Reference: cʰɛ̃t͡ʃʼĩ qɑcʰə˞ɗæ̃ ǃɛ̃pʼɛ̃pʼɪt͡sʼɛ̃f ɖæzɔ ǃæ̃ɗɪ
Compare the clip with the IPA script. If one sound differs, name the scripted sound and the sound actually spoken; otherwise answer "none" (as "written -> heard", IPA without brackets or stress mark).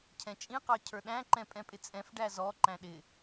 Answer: none